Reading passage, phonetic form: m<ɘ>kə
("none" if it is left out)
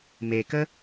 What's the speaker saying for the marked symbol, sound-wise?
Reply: e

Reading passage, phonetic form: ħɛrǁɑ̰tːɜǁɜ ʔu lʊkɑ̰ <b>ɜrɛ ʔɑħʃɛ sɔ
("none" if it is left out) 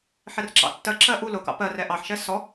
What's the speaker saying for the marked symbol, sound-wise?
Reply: p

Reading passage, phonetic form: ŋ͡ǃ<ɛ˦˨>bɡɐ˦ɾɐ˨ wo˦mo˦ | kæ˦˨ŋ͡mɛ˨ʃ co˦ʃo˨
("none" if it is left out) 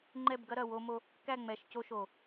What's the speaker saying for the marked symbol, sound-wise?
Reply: ɛ˦˨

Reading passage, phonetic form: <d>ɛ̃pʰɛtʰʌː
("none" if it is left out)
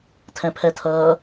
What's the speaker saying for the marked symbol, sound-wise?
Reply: tʰ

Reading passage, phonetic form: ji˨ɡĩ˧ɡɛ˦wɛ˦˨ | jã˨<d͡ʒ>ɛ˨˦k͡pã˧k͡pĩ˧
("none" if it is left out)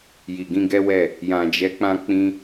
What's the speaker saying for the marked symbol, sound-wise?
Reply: d͡ʒ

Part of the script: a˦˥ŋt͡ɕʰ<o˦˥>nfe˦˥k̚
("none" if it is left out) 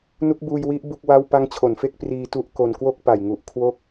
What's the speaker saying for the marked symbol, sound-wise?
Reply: o˩˦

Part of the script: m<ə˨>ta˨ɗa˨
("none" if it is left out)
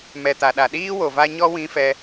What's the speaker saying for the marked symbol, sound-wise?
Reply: ɛ˨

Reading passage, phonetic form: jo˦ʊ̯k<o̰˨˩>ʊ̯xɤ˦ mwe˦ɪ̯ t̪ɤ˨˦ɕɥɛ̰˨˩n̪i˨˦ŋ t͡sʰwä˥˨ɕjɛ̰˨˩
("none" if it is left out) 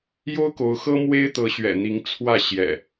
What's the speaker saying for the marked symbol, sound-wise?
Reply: o˨˦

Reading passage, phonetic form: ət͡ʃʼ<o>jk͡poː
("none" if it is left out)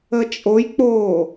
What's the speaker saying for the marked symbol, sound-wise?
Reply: o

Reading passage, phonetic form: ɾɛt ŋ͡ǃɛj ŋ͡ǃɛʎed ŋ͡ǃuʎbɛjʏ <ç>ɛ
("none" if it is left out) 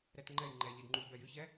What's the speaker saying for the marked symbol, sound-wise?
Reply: ç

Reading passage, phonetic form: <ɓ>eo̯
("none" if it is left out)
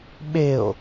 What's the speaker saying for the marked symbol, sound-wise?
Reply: ɓ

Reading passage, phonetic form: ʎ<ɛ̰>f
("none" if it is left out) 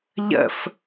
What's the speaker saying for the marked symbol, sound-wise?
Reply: ə̰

